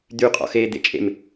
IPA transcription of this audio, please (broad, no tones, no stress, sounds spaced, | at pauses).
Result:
d̪ y qʼ ɔ̰ x eː d̪ ḛ t͡ʃʼ ḛ m